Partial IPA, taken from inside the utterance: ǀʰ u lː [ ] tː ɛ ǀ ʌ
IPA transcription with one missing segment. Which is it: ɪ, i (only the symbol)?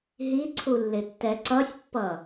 ɪ